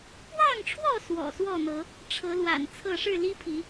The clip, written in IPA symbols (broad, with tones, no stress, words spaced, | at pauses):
pwɑ˥˨ŋʈ͡ʂʰwɔ˥˨ swɔ̰˨˩swɔ˥˨n̪ɤ˨˦ | ʈ͡ʂʰɤ˨˦lwa̰˨˩n t͡sʰɤ˥˨ ʂɻ̩˥˨li˦pʰi˨˦